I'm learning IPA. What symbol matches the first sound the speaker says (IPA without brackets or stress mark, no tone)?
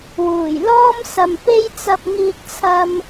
w